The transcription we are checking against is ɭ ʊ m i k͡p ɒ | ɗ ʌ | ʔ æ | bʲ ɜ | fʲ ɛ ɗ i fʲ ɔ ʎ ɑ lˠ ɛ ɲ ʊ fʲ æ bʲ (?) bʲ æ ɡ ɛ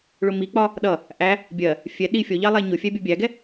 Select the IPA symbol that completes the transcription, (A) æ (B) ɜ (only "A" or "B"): B